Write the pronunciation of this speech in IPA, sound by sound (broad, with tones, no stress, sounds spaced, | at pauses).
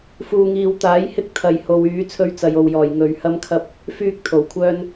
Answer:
f uː˨ ŋ iː˨ w t̪ aː˨˥ j h ɪ˨˥ k̚ t̪ʰ ɐ˨˩ j h o˨ w yː˨˥ t͡sʰ ɵ˥ ɥ t͡s ɐ˨ j o˨ w j ɔː˨˩ j ŋ ɵ˨˧ ɥ h ɐ˥ m kʰ ɐ˥ p̚ | f yː˥ k̚ t̪ʰ o˨˩ w kʷʰ œː˥ n